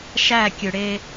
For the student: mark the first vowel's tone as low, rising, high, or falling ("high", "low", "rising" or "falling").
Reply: falling